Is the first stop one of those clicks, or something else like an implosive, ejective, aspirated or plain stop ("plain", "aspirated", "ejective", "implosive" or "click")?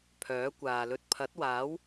aspirated